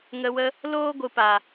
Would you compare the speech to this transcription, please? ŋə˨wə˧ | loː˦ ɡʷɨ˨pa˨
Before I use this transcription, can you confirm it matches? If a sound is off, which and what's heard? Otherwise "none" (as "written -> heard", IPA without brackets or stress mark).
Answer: none